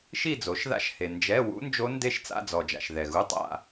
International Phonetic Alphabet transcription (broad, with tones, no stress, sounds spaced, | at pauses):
ʃ i˥˧ d͡z o˩˥ ʃ ð a̰˦˥ ʃ h e˨ n d͡ʒ ɛ˧˥˧ w ṵ˦˥ n d͡ʒ o˦˥ n d e˥˧ ʃ t͡s a̰˧˥˧ d͡z ɔ˨ d͡ʒ a̰˨ ʃ ð ɛ˨ ɣ u˧˥˧ tˤ a̰˥˧